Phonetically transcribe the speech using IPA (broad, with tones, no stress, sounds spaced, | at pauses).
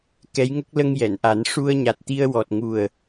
k ɛ˧˥ j ŋ ə˦˥ k̚ l ə˧ ŋ j ɛ˨˩˨ n ʔ a˨˩˦ n ʂ u˧ ə̯ ɲ a˨˩ t̚ t̪ i˧ ə̯ w ɔ˨˩ t̚ ŋ u˨˩ ə̯